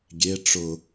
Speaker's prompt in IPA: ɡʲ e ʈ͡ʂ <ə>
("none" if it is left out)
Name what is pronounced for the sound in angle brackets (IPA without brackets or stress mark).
ʊ